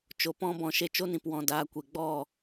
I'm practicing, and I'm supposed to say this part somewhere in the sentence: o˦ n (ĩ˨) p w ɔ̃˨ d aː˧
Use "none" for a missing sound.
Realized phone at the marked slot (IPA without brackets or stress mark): ĩ˨